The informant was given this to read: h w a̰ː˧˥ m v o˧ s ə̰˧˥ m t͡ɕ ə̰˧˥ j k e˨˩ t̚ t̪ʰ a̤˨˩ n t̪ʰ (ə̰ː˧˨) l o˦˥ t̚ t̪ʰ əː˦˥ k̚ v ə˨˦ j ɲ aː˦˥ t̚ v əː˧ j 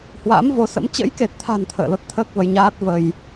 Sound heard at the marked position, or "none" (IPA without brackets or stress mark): ə̰ː˧˨